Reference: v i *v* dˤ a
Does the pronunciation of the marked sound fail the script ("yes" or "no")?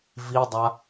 yes